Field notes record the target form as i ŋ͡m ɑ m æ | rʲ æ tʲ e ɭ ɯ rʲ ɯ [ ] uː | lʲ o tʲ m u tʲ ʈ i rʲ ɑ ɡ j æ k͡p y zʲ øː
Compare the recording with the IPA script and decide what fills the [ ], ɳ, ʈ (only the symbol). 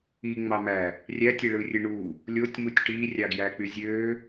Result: ɳ